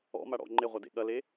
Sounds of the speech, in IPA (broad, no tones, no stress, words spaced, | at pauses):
ɔ̰maɽɔ̰ ŋ͡ǃeʁʷɐdḛ ɠɐle